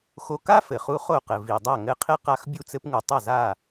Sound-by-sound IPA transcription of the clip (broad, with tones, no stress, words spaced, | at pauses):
xo˧ka˥fɘ˩χu˧ χo˥˩qɘ˩ vi˩dˤa˥˩ ŋɘ˥˩qʰe˥qa˧x bʲu˥˩t͡sɘ˥pŋu˩ tˤɐ˥˩za˥˩